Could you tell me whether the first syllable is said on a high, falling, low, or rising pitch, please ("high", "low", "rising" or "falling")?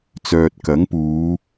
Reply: low